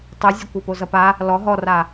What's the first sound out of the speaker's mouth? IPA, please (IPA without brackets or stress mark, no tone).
tˤ